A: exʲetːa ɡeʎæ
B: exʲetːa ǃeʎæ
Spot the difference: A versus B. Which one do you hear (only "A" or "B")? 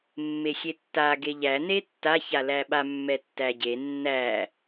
A